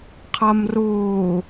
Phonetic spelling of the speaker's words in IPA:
qʰ a m r ʊː

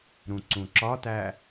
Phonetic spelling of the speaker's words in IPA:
ɾ ũ ǀ ũ ǁ ɒ t æ

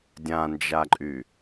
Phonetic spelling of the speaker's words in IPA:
dʲ ã n d͡ʒ a ǃʼ y

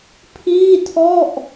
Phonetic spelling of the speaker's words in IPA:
pʰ iː˥˩ tʰ ɔ˥˩ ʔ

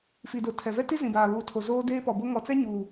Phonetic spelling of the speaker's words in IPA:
f i˨ d o˨ tʰ ɛ˨ v ɛ˦ t i˦ z ĩ˨ b aː˨ β uː˨ tʰ o˨ z oː˦ d eː˦ p ɔ˨ b o˦ ŋ ɔ˨ t͡s ɛ˦ ɲ uː˨

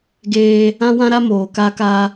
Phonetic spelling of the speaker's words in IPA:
ɡ eː˦ | ã˦ w ã˦ ɾ a˦ m oː˨ k a˦ k a˦

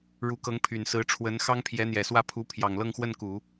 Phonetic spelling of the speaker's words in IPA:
ɻ u˧˥ k ɤ˧˥ ŋ pʰ y˨˩ n s ɹ̩˧˥ ʈ͡ʂʰ w ə˧˥ n x ɑ˥ ŋ pʰ j ɛ˧˥ n̪ j ɛ˨˩ s w ä˥˩ pʰ u˧˥ pʰ j ɑ˨˩ ŋ l ɤ˥˧ ŋ x w ə˥˩ n k u˨˩˦

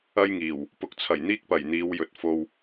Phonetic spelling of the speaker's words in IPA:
ɐ˥ j ŋ iː˨˩ w | p ʊ˨ k̚ t͡sʰ ɐ˨˩ j n̪ iː˥ k̚ p ɐ˨˩ j n̪ iː˨˧ w j ɵ˨˥ t̚ f o˧ w

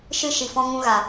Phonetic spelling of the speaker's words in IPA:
ʃ ɨ˦ ʃ i˨ f ɔ̃˧ ŋ ũ˧ ɣ a˨

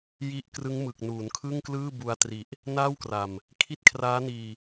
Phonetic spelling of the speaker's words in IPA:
j i˦˥ ʔ k r ɯ˦˥ ŋ m ɯ˨˩ k̚ n uː˩˦ n kʰ ɯ˥˩ ŋ k l ɯː˥˩ b u˧ a̯ t r i˨˩ ʔ | n aː˥˩ w k r a˨˩ m | kʰ i˦˥ t̚ kʰ r aː˦˥ n iː˧

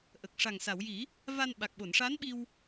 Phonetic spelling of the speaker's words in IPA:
ʔ ə˨˩ k̚ ʂ a˨˩ ŋ s a˨˩˨ w j i˨˩˦ | v a˧ n ɓ a˨˩ k̚ ɓ o˨˩˨ n ʂ a˧˥ n ɓ i˧ w

